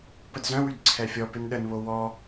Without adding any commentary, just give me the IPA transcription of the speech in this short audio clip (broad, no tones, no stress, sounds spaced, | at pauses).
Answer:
p ə d z œ̃ w y d ǀʰ ɛ fʲ ɔ p ɪ n ɗ ə n β o w ɔ